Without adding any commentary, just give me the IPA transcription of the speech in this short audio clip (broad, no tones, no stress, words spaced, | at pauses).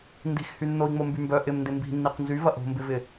ndi̤xhy nːoi̯ŋ͡mombymbœ ʔɪmndɪ mbi̤nːiq nzyvɐ ʔo̤mbɪvɪ